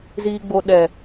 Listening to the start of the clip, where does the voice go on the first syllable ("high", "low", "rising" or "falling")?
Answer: high